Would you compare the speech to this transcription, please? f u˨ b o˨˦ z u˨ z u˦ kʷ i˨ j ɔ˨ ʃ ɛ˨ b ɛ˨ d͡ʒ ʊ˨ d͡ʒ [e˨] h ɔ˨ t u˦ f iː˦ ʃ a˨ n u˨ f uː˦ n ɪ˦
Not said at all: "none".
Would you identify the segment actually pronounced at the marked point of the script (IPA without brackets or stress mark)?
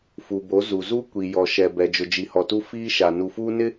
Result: i˨